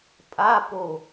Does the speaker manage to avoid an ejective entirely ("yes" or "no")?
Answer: no